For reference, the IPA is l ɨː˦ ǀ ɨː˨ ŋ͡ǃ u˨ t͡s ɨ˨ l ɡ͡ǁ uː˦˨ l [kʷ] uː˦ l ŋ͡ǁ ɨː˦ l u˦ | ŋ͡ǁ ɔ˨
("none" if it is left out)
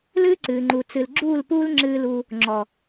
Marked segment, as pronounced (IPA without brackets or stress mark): p